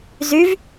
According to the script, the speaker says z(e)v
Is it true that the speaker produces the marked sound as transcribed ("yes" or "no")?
no